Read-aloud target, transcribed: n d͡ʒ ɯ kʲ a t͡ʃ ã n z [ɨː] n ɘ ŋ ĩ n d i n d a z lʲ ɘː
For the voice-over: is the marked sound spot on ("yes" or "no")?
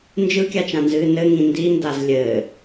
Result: yes